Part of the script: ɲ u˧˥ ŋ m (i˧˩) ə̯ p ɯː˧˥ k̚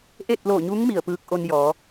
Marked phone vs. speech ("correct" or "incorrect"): correct